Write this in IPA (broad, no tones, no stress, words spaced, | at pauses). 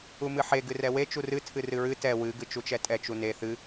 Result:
umɨħe ɡɨrɛwe t͡ʃurɨ tʰɨrɨɹɨ tɛ wɨ ɡɨt͡ʃut͡ʃɛtʼɛ t͡ʃune θɨ